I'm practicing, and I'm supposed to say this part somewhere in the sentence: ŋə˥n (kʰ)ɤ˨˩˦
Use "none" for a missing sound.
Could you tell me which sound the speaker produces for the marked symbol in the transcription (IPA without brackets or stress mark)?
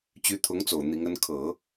kʰ